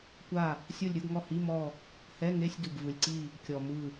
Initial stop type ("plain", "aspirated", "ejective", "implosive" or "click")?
plain